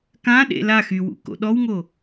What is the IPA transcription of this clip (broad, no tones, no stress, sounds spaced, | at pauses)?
k ã ɗ ḛ l a x y w ṵ k o̰ ɗ ɔ w ŋ o